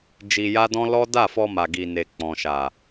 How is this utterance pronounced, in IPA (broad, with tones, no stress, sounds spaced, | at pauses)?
d͡ʒ i˧ j a˦ d ɔ̃˦ l ɔ˦ d a˦˨ f ɔ˧ m a˨ ɡ i˨ n e˨ k͡p ɔ̃˨ ʃ a˨